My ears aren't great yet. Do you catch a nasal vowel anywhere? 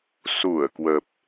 no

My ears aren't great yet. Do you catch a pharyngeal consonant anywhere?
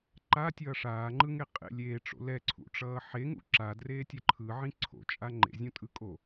yes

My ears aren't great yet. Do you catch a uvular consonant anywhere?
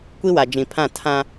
no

